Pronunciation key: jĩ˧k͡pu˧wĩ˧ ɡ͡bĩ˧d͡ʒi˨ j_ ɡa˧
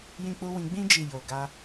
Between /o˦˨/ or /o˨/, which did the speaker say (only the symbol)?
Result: o˨